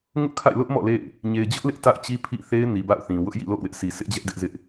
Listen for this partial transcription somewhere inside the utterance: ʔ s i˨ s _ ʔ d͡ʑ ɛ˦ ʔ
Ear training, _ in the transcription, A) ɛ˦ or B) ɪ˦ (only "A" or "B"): B